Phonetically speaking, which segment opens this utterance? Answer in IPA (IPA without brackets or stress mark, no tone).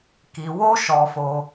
k